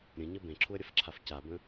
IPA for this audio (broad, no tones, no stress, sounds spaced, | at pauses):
ɾʲ ə̃ ɲ ə b ẽ ǁʰ u ə̯ ɾʲ ə f ǁʰ a f c a b ə̃